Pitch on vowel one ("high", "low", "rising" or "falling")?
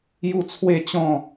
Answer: falling